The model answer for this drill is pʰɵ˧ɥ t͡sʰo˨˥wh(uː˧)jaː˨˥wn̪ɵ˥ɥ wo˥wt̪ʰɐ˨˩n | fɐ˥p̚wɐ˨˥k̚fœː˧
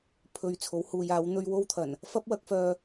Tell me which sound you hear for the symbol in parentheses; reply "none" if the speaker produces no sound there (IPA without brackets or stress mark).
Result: uː˨˧